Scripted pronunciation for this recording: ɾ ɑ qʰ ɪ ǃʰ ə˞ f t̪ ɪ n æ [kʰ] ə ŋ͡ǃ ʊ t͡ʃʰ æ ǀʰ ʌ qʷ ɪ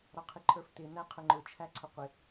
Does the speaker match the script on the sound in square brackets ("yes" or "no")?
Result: no